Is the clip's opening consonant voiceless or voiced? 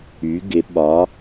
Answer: voiced